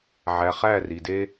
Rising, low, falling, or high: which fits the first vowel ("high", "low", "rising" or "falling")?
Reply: low